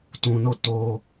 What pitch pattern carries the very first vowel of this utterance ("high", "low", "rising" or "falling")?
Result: low